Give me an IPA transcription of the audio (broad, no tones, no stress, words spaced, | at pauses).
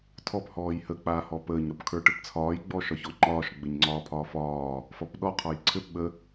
tʰɔp hɔːjhə k͡paːhɔpəːɲ ɾɔpkʰə˞ʈɘpt͡sʰɒːj ɡ͡bɔːʃɒçɔŋ͡ǃɒːʃ ɡ͡bɘɲŋ͡ǀɒːpʰɒːfɒː | fɒpɗɔ qʰɒjǀʰɘp ɓə